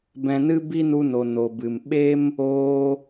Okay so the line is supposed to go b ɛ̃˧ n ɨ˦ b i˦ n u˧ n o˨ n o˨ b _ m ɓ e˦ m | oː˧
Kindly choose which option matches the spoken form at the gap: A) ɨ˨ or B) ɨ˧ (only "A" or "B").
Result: A